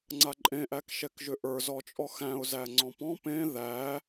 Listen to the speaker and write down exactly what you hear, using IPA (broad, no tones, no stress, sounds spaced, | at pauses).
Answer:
ŋ͡ǀ a ǃʼ ẽ ʔ æ k ʃ ɛ k ʒ ʏ ʔ ə˞ z ɔ t͡ʃʼ ɔ x æ̃ ʊ̯ z æ ŋ͡ǀ ɔ̃ p ɔ̃ p ẽ ð æ